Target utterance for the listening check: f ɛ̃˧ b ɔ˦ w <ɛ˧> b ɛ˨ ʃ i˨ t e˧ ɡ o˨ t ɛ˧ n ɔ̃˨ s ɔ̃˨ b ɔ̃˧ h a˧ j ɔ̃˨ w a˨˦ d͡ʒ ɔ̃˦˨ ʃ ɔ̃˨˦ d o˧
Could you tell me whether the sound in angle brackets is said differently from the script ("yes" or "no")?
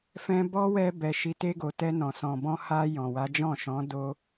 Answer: no